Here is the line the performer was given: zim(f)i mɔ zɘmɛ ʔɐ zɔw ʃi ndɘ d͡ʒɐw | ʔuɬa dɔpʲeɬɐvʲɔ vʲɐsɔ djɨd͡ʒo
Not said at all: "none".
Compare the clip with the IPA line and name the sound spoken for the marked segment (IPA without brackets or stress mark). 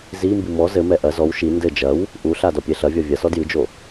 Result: b